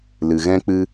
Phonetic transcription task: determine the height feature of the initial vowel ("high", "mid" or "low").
high